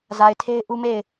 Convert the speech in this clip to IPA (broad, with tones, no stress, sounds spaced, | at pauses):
z a˨ ɪ̯ tʰ e˦ ɪ̯ ʔ u˦ m e˦˨ ɪ̯